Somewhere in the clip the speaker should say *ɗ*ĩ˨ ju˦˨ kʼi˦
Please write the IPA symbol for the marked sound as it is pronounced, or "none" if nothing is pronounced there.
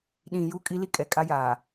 ɗ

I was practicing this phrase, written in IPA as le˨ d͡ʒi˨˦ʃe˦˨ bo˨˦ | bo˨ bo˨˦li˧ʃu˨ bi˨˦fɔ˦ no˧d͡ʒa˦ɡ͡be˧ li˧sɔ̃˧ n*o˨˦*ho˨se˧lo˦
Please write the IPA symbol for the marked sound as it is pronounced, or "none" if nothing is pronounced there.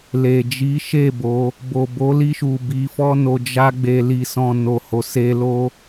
o˨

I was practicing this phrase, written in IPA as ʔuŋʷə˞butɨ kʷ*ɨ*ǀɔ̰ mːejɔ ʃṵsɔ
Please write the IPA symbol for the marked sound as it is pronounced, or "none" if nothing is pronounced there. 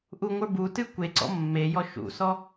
e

